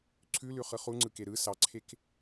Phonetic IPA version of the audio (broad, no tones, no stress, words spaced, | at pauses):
ǀʰʉlʉχɯ χuŋ͡ǀɯke ɾɯ sɑǀʰek